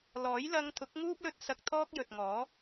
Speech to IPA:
l ɔː˨˥ j l ɐ˧ ŋ t̪ʰ ʊ˨˥ k̚ ŋ uː˥ p̚ l ɵ˧ t̚ s ɐ˧ k̚ t̪ʰ ɔː˥ k̚ j ɵ˨ t̚ ŋ ɔː˨˥

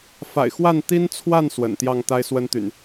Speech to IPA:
f a̰˨˩ ɪ̯ x w a˥˨ n t̪ i˦ n t͡sʰ w a˥˨ n s w ə̰˨˩ n t̪ j ɑ˥˨ ŋ t̪ a˦ ɪ̯ s w ə˦ n t̪ y̰˨˩ n

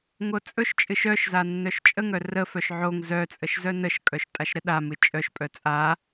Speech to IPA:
ŋ o t͡sʼ ɵ ʃ t͡ʃʼ ɨ ʃ œ ʃ z a nː œ ʃ t͡ʃʼ ə ŋ œ r ə f œ ʃ ʕ o ŋ z œ t͡sʼ ə ʃ z œ n ə ʃ kʼ œ ʃ tʼ a ʃ ɾ ə ɗ a m ɨ t͡ʃʼ œ ʃ pʼ œ t͡sʼ a

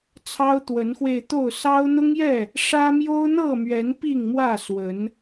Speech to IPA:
t͡sʰ ɑ˦ ʊ̯ t̪ w ə˨˦ n x w e˧ ɪ̯ t̪ o˥˨ ʊ̯ s ɑ˦ ʊ̯ n̪ ʊ˦ ŋ j ɛ˥˨ | ʂ ä˦ m j o˦ ʊ̯ n̪ ɤ˥˨ m ɥ ɛ˨˦ n p i˥˨ ŋ m w ä˥˨ s w ə˨˦ n

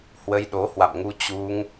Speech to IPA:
h w ə˧ j ɗ o˨˦ h w a̰˧˨ m ŋ u˧ t͡ɕ u˧ ŋ

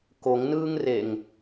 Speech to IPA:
k o ŋ n ɯː ŋ r e ŋ

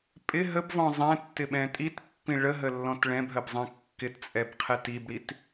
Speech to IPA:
pʼ ɪ ɦ ə b v ɔ̃ zˤ ɛ̃ tː ɪ ɓ ɛ̃ tʼ i t pː ĩ ɭ ə ɦ ə lː ɔ̃ t ɭ ɛ̃ b ɦ ə b zˤ ɛ̃ kː ɪ t t͡sʼ ɛ b qʰ ɛ t i b ɽ i t

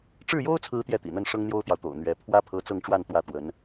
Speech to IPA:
ʈ͡ʂ ɻ̩˥˩ j o˥ ʊ̯ t͡sʰ ɹ̩˧˥ t̪ j ɛ˥˩ t̪ ḭ˨˩ n̪ ə˥˩ n ʂ ɤ˥ ŋ n̪ j o˥ ʊ̯ t̪ j ɑ˨ ʊ̯ t̪ o̰˨˩ ʊ̯ n̪ ɥ ɛ˧˥ pʰ w ä˥ pʰ ɤ˧˥ t͡s ɤ˥˧ ŋ ʈ͡ʂ w a˥˧ n t̪ w ä˥˩ t̪ w ə˧˥ n

